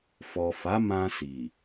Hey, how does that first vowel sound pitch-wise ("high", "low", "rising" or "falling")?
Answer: low